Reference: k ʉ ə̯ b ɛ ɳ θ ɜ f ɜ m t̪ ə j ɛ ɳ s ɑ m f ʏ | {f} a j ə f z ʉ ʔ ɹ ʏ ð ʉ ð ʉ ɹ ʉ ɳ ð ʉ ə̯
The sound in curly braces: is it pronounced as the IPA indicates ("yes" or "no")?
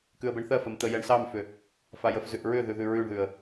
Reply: yes